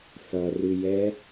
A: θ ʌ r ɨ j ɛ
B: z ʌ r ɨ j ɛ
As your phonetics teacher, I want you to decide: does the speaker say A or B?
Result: A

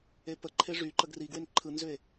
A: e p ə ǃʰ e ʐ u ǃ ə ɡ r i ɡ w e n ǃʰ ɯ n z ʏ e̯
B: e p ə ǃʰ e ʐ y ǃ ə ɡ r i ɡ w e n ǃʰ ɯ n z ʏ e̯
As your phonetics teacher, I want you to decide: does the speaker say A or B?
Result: B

